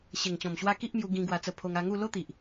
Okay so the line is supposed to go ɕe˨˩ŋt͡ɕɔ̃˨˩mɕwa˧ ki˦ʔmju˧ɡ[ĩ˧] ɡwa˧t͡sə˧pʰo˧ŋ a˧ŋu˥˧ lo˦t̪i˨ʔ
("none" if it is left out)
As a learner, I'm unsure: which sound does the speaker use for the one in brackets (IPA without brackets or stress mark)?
ĩ˧